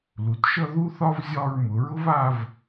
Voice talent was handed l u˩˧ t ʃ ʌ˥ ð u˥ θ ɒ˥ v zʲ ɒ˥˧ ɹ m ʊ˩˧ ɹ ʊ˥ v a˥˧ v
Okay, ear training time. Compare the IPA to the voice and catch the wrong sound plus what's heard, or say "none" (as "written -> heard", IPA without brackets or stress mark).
none